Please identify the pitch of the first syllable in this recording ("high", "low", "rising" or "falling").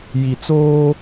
low